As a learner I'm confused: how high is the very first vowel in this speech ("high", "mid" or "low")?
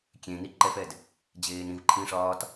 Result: mid